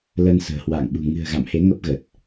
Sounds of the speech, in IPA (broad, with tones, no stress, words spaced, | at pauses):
ləː˧nsə̤ː˨˩hwa̰ː˧˨ŋɓṳ˨˩ ŋɨ̤˨˩ə̯ ɣa̰˧˨mhe˨˦ ŋə˦˥p̚ɣə˨˩t̚